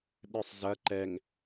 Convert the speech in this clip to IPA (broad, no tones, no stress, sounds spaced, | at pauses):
ɗ ɨ sˤ z ɐ ǃ ɛ ŋ